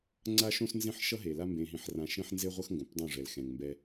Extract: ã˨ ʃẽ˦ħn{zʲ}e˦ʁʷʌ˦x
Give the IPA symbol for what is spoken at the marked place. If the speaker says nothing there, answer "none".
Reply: z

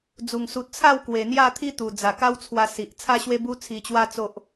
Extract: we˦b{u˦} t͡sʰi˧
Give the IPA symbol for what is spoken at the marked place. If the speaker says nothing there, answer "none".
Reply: u˦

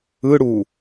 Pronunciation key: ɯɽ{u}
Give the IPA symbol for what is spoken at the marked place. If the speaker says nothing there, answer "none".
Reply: u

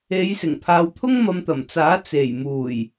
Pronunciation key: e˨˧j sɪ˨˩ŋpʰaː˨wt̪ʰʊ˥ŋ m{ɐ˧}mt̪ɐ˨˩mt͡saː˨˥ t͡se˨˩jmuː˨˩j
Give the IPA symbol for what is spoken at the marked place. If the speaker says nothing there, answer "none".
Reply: ɐ˧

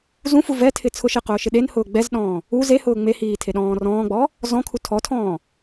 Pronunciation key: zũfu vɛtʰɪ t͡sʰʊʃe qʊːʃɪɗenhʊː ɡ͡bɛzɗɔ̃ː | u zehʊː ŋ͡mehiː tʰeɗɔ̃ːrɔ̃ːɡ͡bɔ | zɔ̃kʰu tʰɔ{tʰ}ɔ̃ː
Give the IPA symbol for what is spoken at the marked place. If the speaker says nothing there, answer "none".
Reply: tʰ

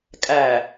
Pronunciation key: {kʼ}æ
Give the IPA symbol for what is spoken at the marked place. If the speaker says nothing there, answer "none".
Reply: kʼ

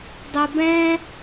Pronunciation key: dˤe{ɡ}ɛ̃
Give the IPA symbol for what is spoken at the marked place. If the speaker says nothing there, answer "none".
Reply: b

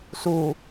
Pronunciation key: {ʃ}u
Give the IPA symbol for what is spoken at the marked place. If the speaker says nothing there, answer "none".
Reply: s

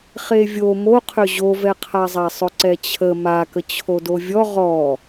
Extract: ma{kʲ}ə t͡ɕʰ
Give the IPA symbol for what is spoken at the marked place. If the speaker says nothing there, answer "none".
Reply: k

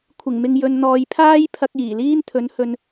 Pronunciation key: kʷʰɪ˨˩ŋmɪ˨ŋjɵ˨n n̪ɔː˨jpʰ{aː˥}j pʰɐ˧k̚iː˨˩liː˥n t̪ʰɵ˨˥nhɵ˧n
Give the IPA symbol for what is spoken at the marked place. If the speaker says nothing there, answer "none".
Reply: aː˥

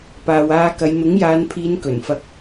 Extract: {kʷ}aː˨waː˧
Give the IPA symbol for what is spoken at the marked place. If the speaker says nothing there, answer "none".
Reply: p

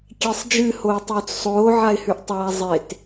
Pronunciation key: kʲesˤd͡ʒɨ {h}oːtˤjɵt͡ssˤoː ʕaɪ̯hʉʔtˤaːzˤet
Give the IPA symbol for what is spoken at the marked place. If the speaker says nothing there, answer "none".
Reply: h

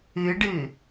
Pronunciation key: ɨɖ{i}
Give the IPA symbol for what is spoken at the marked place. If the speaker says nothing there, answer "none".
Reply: ɨ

